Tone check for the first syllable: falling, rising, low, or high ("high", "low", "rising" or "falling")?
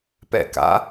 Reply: falling